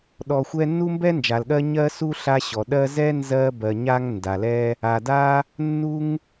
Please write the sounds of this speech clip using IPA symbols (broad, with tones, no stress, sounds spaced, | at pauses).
ɗ ɔ˨ xʷ ɛ˦ nː u˥ m b ɛ˥ n d͡ʒ a˩ l ɠ ɜ˦ ɲ ɜ˥ s u˥ ɬ a˦ ɕ ɔ˩ ɗ ɜ˦ z ɛ˥ n z ɜ˦ b ɜ˨ ɲ a˦ ŋ n d a˩ l ɛ˦ | a˨ d a˥ | nː u˥ ŋ